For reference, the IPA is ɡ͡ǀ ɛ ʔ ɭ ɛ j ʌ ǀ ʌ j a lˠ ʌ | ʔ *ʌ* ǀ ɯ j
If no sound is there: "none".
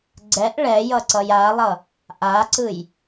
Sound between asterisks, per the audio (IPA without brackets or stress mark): a